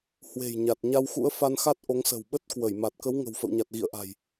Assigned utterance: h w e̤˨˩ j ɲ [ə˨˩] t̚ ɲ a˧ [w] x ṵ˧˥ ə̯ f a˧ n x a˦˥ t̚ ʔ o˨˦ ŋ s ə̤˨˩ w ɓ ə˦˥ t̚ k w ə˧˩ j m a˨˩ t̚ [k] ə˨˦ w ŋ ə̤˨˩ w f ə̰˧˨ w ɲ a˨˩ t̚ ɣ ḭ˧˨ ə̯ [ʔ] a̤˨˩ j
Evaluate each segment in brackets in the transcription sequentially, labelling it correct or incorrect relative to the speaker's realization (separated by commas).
incorrect, correct, correct, correct